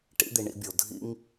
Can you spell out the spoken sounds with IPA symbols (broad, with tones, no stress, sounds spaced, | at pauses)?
ʈ ḭ˦ d̪ i˨ ɳ ḭ˨˦ bʲ o˨ dʱ ḭ˦ ŋ